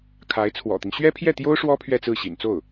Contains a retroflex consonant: yes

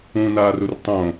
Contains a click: no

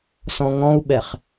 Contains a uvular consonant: yes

